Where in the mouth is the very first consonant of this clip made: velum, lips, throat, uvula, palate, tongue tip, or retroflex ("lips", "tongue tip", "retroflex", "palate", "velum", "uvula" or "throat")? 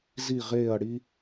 tongue tip